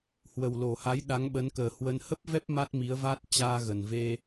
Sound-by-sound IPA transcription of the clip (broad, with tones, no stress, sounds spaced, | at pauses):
h w ə˨˩ w l o˨˩ h a˨˦ j ɗ a˨˦ ŋ ɓ ə˨˦ n k əː˨˩ h w ə˧ n h ə˦˥ p̚ v ɛ˦˥ p̚ m a˦˥ t̚ m i˨˦ ə̯ v a˦˥ t̚ t͡ɕ aː˧ ɣ ə˨˩ n v e˧